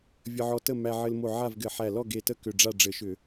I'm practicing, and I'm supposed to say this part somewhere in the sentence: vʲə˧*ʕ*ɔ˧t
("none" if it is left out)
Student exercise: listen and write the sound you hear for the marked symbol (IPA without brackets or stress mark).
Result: ʕ